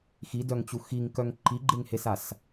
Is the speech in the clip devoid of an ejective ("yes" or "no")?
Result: yes